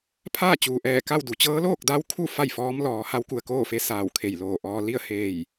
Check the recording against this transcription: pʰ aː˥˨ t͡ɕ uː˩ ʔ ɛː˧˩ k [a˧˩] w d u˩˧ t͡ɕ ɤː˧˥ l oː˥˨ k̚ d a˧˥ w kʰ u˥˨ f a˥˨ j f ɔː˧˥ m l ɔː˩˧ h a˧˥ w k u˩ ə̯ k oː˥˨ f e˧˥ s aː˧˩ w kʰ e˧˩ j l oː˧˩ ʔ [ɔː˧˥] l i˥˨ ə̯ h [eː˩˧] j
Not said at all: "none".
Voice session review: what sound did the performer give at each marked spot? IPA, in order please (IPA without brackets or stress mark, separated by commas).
a˥˨, ɔː˧, eː˧˩